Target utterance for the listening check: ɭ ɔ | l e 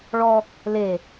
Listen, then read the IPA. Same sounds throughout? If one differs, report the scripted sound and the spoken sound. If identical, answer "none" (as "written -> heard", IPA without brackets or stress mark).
none